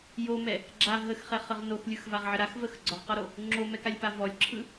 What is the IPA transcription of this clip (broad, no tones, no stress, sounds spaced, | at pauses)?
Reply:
j o m ɛ | ɡ͡ǁ a ɦ ə x χ ɛ χ ə ʁ n o x lʲ ɯ x v a ʁ ʕ ə ɾ a x v ə x ɡ͡ǀ ɔ ʁ q ɔ ɾ o | ŋ͡ǁ o m ɛ k a lʲ p a v ɔ lʲ ǁʰ ɯ